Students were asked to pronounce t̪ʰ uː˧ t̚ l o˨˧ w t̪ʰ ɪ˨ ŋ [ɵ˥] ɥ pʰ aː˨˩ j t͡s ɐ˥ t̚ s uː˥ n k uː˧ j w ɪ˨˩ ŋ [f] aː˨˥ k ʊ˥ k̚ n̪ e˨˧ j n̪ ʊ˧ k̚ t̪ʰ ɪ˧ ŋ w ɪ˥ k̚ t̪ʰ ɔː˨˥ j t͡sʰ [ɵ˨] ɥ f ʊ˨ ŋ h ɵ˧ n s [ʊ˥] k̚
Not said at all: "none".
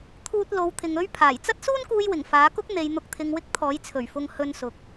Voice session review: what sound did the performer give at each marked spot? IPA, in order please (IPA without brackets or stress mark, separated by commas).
ɵ˥, f, ɵ˨˩, ʊ˨